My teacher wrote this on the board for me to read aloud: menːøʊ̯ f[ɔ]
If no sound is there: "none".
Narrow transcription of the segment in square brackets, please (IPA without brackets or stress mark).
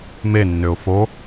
o